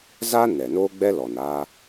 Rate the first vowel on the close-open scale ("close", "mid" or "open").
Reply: open